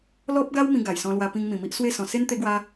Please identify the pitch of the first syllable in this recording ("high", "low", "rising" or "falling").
high